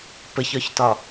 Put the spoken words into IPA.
pəçɒçtɒ

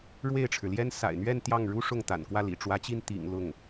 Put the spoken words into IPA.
ɻwe˥˩ɪ̯ʈ͡ʂʰɻ̩˩ljɛ˥n sa̰˨˩ɪ̯n̪ɥɛ˥˧n t̪jɑ˥˩ŋɻu˥ʂʊ˥˩ŋ t̪a̰˨˩nkwä˥˩lḭ˨˩ ʈ͡ʂwä˧˥t͡ɕi˥˩n t̪ḭ˨˩ŋ lʊ˥˩ŋ

